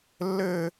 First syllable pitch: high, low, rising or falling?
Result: high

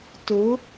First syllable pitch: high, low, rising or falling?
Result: rising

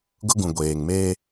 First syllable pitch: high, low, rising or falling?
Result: high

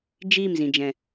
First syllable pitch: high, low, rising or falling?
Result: falling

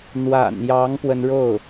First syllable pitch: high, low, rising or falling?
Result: low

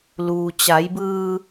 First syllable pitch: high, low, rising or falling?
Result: low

